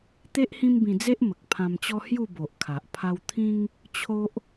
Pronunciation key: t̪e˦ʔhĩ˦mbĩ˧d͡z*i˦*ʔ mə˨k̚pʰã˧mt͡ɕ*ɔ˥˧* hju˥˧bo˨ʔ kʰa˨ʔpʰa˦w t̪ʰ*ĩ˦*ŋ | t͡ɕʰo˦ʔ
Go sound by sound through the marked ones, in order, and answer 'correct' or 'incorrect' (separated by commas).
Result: incorrect, incorrect, correct